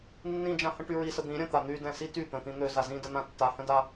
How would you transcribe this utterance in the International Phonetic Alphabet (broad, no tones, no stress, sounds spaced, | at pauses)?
nː ĩ d͡ʒ ã h ə̃ ʈ y ɹ i s ə d̪ ĩ ɾʲ ə̃ t̪ a n̪ y d ɛ̃ s i t y t̪ ə̃ t̪ ĩ n̪ ø z a z ĩ d ə n̪ ã tː a h ə̃ d a